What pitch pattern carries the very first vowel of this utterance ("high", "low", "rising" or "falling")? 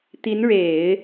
rising